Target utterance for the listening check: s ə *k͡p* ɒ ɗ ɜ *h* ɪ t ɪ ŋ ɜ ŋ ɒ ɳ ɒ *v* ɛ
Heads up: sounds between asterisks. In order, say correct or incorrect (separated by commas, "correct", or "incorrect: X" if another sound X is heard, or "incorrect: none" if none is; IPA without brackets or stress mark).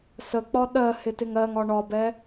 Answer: correct, correct, incorrect: b